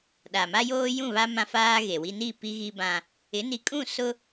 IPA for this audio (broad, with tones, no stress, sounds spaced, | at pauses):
ɗ a˨ m a˦ j oː˦ j ũ˦˨ β a˦ m ã˦ f aː˦ ɣ e˨ w i˦ n i˦˨ p i˦ ɣ i˦ b ã˦ | ɪ˨˦ n i˨ kʼ ũ˦˨ s ʊ˦